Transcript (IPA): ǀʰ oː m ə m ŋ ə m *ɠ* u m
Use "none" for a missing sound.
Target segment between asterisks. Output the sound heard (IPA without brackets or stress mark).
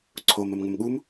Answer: ɠ